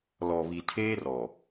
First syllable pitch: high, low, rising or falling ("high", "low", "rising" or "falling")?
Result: low